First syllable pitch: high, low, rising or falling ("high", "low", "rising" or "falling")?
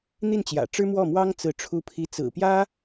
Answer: falling